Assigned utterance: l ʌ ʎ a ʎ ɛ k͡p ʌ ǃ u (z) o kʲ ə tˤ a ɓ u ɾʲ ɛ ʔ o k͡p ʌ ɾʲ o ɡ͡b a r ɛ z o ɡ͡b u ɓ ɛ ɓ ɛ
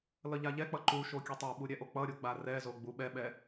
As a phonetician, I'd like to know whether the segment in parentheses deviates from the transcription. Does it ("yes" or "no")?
yes